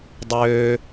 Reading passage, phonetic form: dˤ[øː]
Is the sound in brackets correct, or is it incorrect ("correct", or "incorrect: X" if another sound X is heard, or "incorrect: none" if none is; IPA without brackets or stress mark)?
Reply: correct